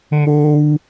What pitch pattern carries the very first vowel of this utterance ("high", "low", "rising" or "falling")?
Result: high